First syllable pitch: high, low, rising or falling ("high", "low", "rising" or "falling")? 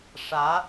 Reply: rising